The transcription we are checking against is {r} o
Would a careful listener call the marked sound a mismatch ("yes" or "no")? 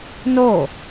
yes